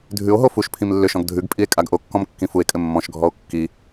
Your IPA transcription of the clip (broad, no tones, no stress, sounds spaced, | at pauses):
dʱ ʉ o̯ ɦ o f u ʃ pʰ ĩ m lː ʏ ʃ ɔ̃ ɡ dʱ ʉ ɡ pʼ i e̯ kʼ a ɡ ʔ o kː ɔ̃ m kː ĩ f u e̯ kʼ ɘ mː ɔ̃ ʃ ɡʱ ɔ o̯ kː i